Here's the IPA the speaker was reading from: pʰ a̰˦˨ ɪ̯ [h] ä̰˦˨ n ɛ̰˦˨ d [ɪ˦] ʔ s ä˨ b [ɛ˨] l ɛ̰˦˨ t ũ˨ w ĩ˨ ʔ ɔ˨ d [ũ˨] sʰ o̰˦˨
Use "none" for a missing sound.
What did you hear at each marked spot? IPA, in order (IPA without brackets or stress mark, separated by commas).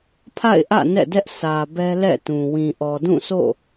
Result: ʔ, ɛ˦, ɛ˦, ũ˦˨